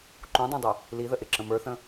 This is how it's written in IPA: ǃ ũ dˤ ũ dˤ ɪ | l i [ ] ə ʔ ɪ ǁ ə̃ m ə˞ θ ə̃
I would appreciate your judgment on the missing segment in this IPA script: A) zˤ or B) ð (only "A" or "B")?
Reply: B